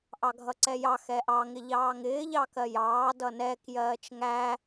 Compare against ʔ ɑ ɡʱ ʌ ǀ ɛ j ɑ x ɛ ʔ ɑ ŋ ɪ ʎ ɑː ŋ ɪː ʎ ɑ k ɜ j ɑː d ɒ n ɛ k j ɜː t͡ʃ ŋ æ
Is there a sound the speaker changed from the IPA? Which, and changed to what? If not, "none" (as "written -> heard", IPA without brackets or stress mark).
ɒ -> ʌ